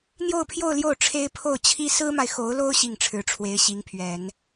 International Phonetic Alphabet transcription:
n̪ j o˥˧ ʊ̯ pʰ j o˥˧ ʊ̯ l j o˥˩ ʊ̯ ʈ͡ʂʰ e˥ ɪ̯ pʰ o˥˩ ʊ̯ t͡ɕʰ i˥ s ɹ̩˥ m a˨ ɪ̯ x o˧˥ ʊ̯ l o˥ ʊ̯ ɕ i˥˩ ŋ ʈ͡ʂʰ ɻ̩˧˥ ʈ͡ʂʰ w e˧˥ ɪ̯ ɕ i˧˥ ŋ pʰ ɥ ɛ˨˩˦ n

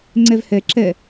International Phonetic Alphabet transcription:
ŋ͡ǀ ɛ v h ɛ ǁ ɛ

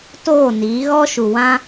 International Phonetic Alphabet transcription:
t oː˦˨ n iː˨˦ ɣ ɔ˦ ʃ u˨ w ã˦

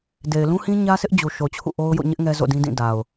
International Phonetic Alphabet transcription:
d e˨ ɪ̯ l ũ˦ h ĩ˦ ɲ ä˦ sʰ ɪ˦ ʔ d͡ʑ u˨ ʃ o˨ t͡ɕʰ ṵ˦˨ ʔ o˦ ʊ̯ j o̰˦˨ ɲ ɪ˦ ʔ ŋ ɛ˦ z o̰˦˨ d ĩ˦ d ĩ˦˨ d a˨ ʊ̯

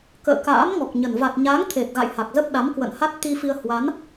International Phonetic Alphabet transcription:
k ə̰ː˧˨ k a̰ː˧˥ m ŋ ɔ˨˩ k̚ ɲ ə˨˩ n v a˨˩ t̚ ɲ a˨˦ ŋ t̪ʰ e˨˩ t̚ ɣ a̰˧˨ j h a˨˩ k̚ z ə˦˥ p̚ ɗ a˨˦ m k w ə̰˧˨ n h a˦˥ t̚ t̪ i˧ f i˧ ə̯ h w a˨˦ n

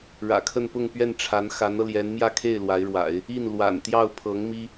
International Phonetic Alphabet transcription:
ɻ ä̰˨˩ kʰ ə˥˧ n p ʊ˥˧ ŋ p ɥ ɛ˥˩ n ʈ͡ʂʰ a˧˥ n x a˧˥ n ɤ˧ l j ɛ˧˥ n m j ä˥˧ kʰ e˥˩ ɪ̯ l w a˧˥ ɪ̯ ɻ w a̰˨˩˦ ɪ̯ | i˥˩ n l w a̰˨˩ n t̪ j ɑ˥˩ ʊ̯ pʰ ɤ˧˥ ŋ m i˥

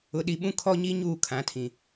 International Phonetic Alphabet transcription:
ʊ˨ ɗ i˨ ɓ ũ˦ kʰ ɔ˦ ɲ i˦ ɲ uː˦˨ kʰ ã˨˦ tʰ ĩ˨

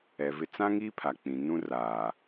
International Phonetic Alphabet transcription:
ɛ˨ v ɪ˦ t͡s ã˦ ŋ i˦ pʰ a˨ k͡p ĩ˨ n ũ˦ r aː˨

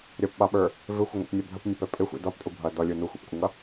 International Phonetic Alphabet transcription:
ɾʲ ʌ p ɓ ɑ ɓ ə˞ | v ɪ xʷ ə ŋʷ ḭ p nʲ ɛ bʱ ə p nʲ ʌ p ɛ pʼ ɪ xʷ ḭ d ɔ p tʼ u bʱ ʌ d ɔ lʲ u n u xʷ ḭ p kʷʼ ə ŋ ʌ

